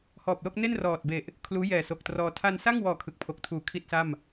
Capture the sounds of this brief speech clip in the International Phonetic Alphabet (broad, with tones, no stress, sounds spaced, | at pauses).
h ɔː˨˩ p̚ l o˥˩ k̚ n e˥˩ n r ɔː˨˩ t̚ b e˨˩ ʔ | kʰ l uː˦˥ j ɛː˨˩ s o˨˩ k̚ t r ɔː˧ tʰ a˧ n s a˥˩ ŋ w ɔː˨˩ kʰ ɯ˨˩ k̚ pʰ o˨˩ k̚ tʰ uː˨˩ kʰ i˥˩ t̚ s a˥˩ m